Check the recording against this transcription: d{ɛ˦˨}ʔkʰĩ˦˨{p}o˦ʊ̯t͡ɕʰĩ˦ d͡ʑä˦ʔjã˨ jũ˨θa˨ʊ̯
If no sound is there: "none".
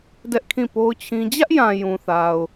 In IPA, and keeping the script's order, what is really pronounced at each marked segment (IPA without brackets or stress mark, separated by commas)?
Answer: ɛ˦, p